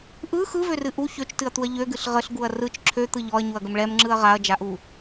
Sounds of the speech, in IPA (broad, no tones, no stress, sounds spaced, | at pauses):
ʔ ɯ x ɯ v ø r ɨ ʔ u ç ø t͡ʃ t ɨ ɐ̯ t̪ u ɐ̯ ʎ ø ɡ ɨ ɬ ʁ ə ɬ ɡ u ɐ̯ r ɯ t͡ʃ ǁʰ ø t̪ ɯ ʎ ɔ ɐ̯ ɲ u ɐ̯ ɡ ə m ɭ ɛ m ŋ͡ǁ ɯ ɐ̯ ʁ a ɐ̯ d͡ʒ a ʔ u